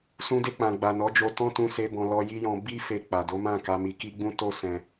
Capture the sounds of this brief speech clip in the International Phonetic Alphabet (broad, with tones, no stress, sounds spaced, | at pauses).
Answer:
s ũ˧ d e˧ k͡p ã˨ ɡ͡b a˨ n ɔ˨˦ d͡ʒ o˧ t ɔ̃˦ t ũ˧ s e˧ b ɔ̃˧ l ɔ˧ j i˦ j ɔ̃˧ b i˦ f e˧ k͡p a˨ d o˨˦ m ã˦˨ k a˧ m i˧ k i˦ ɡ͡b ũ˦ t o˦ s ɛ̃˧